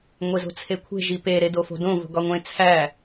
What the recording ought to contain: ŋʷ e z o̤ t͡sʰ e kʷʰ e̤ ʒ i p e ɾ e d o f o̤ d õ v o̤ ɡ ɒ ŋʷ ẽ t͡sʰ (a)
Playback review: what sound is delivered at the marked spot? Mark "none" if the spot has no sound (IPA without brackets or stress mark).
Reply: æ